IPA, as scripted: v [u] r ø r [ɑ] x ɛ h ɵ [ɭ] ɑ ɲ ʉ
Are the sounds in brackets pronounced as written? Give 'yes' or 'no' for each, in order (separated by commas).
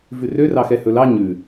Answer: no, yes, no